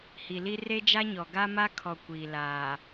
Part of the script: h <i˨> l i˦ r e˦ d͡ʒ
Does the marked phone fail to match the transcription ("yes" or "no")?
no